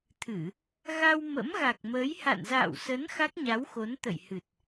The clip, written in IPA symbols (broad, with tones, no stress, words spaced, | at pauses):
t̪ʰɨ˧˩˨ | ɣa˧w mə̰˧˥mɣa˨˩k̚məː˨˦j ha̰˧˨nza̰ː˧˨wsə˨˦n xa˦˥k̚ɲa˨˦wxo˨˦n t̪ə̰˧˨jhɨ˨˩t̚